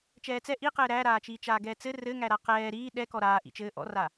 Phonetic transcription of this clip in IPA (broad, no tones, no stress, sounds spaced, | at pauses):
t͡ʃ ɛː t͡s ɛ ʔ i q ɘː ɾ æ ɾ aː t͡ʃ iː t͡ʃ aː ɡ ɛː t͡s ɘ r ɘ ŋ æ ɾ a q ɛː ɾ iː ɗ ɛ k ɔ ɾ aː ʔ ḭ t͡ʃ ɘː ʔ ɔ̰ r a